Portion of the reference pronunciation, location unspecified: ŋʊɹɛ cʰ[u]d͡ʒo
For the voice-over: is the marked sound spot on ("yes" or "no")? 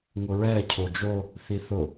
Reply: no